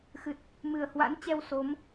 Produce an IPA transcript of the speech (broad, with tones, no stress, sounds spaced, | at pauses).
x ɨ˨˩ t̚ | m ɨ˨˩ ə̯ h w a̰˧˥ n t͡ɕ ɛ˧ w s o˨˦ m